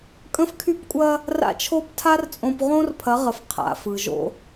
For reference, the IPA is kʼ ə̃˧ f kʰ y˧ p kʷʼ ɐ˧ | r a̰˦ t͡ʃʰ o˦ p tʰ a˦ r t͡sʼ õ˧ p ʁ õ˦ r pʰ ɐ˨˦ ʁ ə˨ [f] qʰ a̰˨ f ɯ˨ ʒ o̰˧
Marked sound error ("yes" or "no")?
no